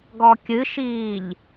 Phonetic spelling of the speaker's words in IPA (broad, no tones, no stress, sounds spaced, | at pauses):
ɡ ɔ kʲ ɨ ʃ iː ʎ